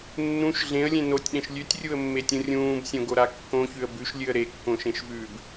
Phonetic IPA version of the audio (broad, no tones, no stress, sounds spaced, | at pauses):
nː ũ ʃ ɮ ẽ ə̯ lʲ ẽ n o tʲ ɗ ẽ ʃ lʲ ʉ tʲ rʲ u ə̯ mː e tʲ ũ rʲ ũː b sʲ õ ɡ o ɾ a kː õ ç ʉ ə̯ b ʉ ʃ lʲ ɨ ə̯ ɾ e kː õ ʃ ẽ ʃ v ʉː b